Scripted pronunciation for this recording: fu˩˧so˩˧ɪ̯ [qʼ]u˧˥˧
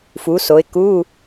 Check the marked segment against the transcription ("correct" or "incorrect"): incorrect